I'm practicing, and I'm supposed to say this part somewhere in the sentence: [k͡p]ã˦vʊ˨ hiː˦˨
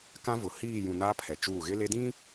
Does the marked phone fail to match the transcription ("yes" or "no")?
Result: yes